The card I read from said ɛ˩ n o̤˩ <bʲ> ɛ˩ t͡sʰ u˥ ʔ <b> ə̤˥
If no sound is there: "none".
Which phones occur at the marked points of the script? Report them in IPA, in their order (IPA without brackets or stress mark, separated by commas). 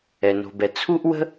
b, w